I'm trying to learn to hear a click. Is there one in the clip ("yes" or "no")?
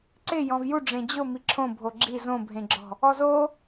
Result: yes